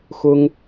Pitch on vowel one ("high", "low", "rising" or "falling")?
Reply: high